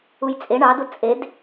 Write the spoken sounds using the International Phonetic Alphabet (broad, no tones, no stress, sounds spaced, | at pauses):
u j t͡sʼ e ɳ ɑ d u t͡sʼ e d